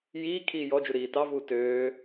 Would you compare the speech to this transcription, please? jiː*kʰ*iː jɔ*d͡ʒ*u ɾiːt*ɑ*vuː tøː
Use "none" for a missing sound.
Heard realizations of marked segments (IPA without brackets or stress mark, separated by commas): kʰ, d͡ʒ, ɑ